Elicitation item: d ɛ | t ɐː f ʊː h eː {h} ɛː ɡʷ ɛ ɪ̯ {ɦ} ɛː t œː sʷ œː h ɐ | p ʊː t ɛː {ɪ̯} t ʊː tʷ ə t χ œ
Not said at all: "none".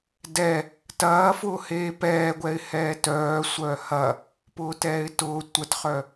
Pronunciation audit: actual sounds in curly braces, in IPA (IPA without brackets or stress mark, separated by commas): p, h, ɪ̯